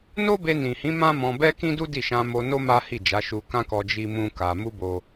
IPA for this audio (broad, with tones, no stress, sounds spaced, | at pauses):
n o˦ b e˧ n ĩ˨ h ĩ˨˦ m ã˦ m ɔ̃˧ b ɛ˦ k ĩ˦ d u˦ d i˦˨ ʃ ã˧ m o˧ n o˦ m a˦ h i˦˨ d͡ʒ a˨˦ ʃ u˧ k ã˦ k ɔ˧ d͡ʒ i˦ m ũ˦ k a˧ m u˦ b o˧